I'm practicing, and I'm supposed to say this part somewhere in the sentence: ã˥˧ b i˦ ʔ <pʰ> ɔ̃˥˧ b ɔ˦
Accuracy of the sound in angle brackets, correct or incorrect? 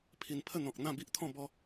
incorrect